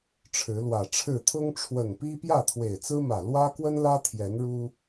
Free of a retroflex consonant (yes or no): no